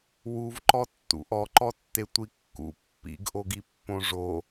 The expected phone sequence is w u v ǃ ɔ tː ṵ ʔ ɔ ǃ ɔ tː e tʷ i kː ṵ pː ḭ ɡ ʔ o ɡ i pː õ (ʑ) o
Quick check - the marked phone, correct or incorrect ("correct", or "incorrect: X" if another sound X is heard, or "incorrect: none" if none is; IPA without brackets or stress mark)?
incorrect: ʐ